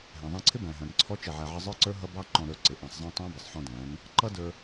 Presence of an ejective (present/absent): absent